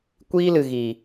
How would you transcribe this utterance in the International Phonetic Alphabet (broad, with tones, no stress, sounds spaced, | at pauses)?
kʷ iː˦ l ɨ˨ ɣ iː˨